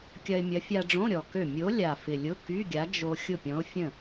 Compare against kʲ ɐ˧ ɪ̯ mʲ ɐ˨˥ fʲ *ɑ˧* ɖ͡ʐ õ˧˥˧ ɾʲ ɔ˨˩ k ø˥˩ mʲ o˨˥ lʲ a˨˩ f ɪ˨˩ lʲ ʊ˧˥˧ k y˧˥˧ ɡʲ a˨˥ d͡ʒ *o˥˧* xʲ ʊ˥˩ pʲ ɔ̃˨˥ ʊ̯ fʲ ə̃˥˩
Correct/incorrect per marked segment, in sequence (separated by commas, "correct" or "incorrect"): incorrect, incorrect